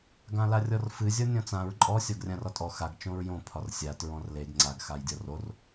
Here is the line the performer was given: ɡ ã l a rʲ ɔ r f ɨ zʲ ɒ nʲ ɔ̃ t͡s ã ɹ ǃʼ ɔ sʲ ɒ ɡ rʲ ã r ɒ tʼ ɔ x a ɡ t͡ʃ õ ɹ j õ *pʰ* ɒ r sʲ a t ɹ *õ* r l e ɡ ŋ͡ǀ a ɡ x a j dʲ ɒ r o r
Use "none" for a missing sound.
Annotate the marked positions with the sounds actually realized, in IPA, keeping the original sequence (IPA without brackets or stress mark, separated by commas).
pʰ, ɔ̃